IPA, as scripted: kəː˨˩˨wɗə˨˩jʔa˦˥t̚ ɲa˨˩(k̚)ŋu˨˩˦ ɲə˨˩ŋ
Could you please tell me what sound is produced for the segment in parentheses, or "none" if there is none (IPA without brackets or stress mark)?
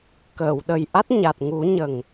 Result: t̚